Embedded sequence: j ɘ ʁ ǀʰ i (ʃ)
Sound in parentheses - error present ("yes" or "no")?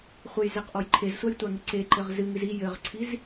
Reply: yes